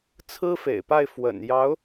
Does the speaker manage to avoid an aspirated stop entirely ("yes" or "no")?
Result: no